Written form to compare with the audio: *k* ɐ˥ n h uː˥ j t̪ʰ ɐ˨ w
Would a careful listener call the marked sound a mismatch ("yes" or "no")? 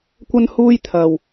yes